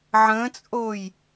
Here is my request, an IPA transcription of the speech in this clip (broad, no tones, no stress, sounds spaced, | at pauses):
ʕ ə̃ː t͡sʼ oː j